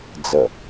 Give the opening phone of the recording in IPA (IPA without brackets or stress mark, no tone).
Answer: d͡z